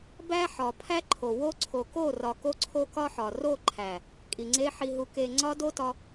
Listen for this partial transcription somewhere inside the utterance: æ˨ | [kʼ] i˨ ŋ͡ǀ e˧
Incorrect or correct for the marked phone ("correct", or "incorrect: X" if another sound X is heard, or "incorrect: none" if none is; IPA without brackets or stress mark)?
correct